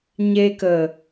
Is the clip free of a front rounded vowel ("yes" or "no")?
yes